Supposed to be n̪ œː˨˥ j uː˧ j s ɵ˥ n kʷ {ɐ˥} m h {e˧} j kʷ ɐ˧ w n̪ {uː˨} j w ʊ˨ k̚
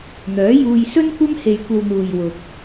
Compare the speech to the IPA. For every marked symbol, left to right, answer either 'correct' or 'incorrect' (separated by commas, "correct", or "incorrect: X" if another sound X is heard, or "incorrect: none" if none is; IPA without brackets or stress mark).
correct, correct, correct